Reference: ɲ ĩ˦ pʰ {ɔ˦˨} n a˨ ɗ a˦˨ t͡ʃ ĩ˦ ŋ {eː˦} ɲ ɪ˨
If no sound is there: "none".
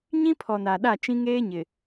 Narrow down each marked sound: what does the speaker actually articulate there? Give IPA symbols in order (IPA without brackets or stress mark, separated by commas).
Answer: ɔ˨, eː˦